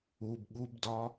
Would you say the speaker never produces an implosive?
no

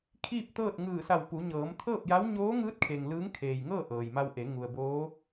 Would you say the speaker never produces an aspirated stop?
no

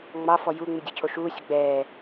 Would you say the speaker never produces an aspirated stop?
no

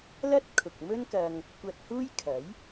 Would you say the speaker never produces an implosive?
yes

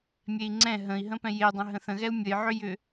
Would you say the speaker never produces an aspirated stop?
yes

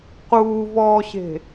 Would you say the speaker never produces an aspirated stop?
yes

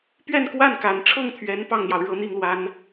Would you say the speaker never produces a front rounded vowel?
yes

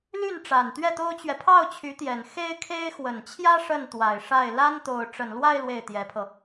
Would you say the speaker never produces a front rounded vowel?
no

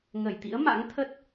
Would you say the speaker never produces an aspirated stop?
no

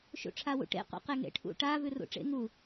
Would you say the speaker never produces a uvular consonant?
no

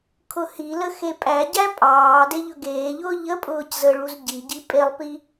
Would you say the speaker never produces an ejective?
no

